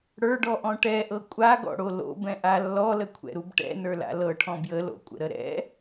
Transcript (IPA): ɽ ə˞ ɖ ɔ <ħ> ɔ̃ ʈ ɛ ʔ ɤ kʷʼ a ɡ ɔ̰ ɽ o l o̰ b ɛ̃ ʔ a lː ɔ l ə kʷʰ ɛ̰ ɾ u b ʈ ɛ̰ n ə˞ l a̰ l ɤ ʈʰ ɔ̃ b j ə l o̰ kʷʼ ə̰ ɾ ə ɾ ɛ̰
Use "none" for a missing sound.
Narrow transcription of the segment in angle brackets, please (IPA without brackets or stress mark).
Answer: ʔ